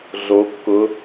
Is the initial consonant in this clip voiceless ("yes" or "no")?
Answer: no